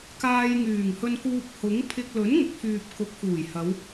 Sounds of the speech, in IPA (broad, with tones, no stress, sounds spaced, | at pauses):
k aː˧ j ŋ yː˨˩ ŋ h ɵ˧ n k uː˧ p̚ h ʊ˨˥ ŋ pʰ ɪ˧ k̚ l ɵ˨˥ n ŋ ʊ˨ k̚ f yː˨ p̚ k ʊ˨˥ k̚ f uː˨˩ j h ɐ˨˧ w